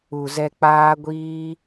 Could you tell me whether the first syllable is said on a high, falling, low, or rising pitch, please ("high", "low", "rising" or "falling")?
low